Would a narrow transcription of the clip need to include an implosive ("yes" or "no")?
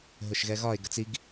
no